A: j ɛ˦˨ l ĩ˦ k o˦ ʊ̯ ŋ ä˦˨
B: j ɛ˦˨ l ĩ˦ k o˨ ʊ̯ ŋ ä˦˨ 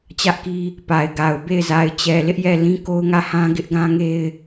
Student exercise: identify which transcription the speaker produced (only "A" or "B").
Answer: A